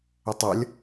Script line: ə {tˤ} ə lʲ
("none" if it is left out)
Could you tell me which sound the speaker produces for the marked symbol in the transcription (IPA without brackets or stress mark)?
tˤ